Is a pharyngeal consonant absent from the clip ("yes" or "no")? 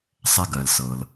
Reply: yes